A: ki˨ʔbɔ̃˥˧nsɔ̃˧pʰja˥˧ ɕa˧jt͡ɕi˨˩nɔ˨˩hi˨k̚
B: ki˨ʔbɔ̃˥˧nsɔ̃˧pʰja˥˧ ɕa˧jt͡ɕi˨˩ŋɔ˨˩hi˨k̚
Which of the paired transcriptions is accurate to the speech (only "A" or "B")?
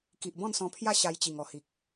B